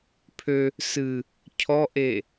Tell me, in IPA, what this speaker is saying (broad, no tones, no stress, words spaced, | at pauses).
pʰø | sɨ | cʰɔʔe